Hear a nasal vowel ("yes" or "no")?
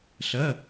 no